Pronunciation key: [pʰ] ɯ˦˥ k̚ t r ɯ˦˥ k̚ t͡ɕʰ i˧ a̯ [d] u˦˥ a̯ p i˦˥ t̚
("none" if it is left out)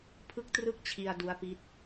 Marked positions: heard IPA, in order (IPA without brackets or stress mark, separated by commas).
pʰ, d